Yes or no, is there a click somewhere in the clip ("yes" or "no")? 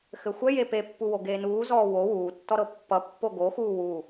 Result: no